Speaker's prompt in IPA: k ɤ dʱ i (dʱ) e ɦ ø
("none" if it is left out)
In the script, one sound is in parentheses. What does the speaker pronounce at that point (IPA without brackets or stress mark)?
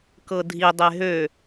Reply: dˤ